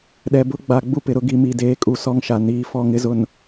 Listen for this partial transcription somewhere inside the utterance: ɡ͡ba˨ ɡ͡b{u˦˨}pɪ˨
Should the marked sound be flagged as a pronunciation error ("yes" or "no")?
yes